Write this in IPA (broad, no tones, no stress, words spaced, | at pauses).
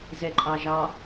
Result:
zɛǃʼɑʒɑ